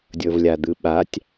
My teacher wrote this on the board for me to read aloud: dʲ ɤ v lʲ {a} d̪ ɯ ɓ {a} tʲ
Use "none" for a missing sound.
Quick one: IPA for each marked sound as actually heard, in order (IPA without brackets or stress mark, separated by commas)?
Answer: a, a